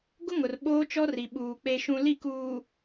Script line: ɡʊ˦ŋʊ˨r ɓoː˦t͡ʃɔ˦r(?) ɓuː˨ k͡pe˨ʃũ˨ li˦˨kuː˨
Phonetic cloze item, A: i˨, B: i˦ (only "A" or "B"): A